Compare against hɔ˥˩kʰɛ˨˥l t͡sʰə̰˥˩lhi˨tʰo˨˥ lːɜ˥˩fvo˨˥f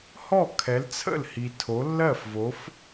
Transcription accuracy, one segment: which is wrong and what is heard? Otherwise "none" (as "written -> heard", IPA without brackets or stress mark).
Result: none